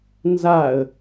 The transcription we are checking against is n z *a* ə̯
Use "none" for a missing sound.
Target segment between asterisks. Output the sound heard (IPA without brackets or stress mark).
a